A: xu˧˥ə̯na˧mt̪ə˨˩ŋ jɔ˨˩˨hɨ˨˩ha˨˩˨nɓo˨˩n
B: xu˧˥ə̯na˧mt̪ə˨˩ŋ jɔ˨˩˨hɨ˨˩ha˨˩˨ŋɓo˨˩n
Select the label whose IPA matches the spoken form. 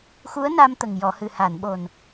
A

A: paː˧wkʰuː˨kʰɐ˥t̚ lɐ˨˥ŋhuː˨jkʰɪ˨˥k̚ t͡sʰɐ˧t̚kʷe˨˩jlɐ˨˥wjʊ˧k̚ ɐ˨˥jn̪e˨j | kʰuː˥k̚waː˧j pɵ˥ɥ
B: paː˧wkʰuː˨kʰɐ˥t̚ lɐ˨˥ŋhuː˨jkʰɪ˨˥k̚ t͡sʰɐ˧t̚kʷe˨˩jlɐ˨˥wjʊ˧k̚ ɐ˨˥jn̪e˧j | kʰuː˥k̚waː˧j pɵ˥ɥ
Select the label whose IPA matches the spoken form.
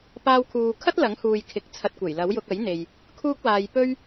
A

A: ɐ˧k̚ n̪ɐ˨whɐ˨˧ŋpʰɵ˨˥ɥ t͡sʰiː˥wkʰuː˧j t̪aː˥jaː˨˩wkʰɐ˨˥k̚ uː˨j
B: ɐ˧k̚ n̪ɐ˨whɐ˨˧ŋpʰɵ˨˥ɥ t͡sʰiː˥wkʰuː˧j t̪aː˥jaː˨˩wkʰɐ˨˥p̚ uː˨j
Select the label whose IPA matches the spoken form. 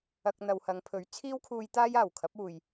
B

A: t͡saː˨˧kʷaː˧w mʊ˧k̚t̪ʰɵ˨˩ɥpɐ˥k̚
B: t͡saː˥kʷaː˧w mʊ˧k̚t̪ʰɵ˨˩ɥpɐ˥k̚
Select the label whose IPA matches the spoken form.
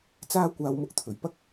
B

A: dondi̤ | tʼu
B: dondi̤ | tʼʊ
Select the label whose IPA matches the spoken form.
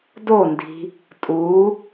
A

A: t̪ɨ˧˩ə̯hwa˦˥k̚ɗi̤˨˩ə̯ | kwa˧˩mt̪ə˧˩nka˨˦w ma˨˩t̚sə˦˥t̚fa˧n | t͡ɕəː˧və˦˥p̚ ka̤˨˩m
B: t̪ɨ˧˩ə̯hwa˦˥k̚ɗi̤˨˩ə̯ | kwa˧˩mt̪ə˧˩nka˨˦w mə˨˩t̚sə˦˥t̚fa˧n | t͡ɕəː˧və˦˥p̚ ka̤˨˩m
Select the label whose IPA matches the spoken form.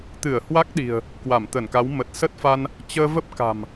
B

